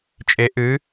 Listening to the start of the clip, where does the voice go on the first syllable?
rising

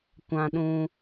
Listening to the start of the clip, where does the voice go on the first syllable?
high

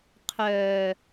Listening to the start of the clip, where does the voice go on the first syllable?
low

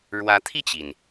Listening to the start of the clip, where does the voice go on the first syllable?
rising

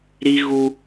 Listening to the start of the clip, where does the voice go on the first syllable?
high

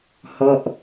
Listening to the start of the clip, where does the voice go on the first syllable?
falling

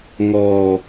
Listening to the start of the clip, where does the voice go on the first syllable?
low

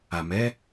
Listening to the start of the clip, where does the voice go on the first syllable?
low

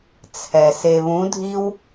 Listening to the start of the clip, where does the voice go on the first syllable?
low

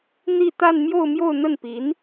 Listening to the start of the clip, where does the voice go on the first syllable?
falling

